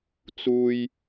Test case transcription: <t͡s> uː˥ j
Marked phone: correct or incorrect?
correct